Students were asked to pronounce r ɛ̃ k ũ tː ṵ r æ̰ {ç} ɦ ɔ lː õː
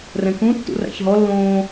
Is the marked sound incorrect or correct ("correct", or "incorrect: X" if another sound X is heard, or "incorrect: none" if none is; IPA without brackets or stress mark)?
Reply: correct